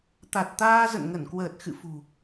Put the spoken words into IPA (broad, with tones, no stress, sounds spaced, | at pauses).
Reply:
t̪ a˨˩ t̚ t̪ aː˧ z ə̰˧˨ n ŋ ə˧˩ n k w əː˨˩ t̚ x ɨ̰˧˨ f ṳ˨˩